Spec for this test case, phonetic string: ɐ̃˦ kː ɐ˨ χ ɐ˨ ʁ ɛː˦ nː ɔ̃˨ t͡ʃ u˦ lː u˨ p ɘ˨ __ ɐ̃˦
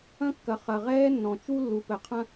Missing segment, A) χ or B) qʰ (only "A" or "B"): B